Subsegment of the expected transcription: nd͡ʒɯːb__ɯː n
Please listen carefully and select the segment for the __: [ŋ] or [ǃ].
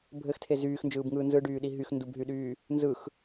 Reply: ŋ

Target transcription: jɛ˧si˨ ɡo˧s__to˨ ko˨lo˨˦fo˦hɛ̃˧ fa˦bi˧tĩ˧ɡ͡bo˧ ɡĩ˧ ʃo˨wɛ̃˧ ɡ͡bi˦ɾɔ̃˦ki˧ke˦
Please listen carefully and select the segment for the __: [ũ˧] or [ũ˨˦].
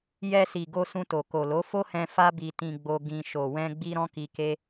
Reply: ũ˧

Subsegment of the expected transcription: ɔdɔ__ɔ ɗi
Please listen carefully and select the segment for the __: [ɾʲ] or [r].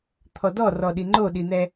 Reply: r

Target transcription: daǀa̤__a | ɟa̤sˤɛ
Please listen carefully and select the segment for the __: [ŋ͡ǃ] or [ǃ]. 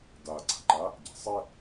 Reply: ǃ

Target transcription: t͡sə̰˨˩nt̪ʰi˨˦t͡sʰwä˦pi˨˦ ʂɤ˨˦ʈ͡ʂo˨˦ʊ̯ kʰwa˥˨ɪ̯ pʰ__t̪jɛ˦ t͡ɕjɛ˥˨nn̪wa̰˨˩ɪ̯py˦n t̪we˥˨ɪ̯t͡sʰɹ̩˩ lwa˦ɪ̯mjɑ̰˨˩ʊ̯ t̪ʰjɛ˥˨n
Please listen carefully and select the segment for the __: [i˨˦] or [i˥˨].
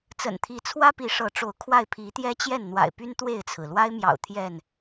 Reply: i˨˦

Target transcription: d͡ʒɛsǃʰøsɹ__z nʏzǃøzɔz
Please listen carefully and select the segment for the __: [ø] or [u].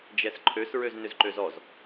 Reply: ø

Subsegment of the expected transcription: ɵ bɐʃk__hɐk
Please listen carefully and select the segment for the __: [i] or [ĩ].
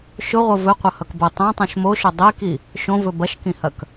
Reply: ĩ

